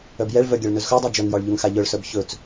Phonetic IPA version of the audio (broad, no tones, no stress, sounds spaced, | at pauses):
œ b j ɛ ɭ v œ ɡʲ a ɭ n ɵ z x œ dˤ œ d͡ʒ œ ŋ j ɒ ɭ ʎ ɵ ŋ x a ʎ œ ɭ s œ b ç ɵ t͡s